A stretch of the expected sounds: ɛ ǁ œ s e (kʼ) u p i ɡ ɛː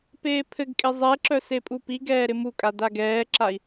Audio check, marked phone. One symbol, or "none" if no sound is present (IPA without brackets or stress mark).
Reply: pʼ